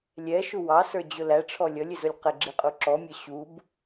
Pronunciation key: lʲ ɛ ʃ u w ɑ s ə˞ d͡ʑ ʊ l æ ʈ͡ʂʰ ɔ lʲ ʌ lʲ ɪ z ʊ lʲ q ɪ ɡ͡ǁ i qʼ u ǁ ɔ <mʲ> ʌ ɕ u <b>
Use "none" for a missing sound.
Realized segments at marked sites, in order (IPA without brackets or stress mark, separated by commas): mʲ, b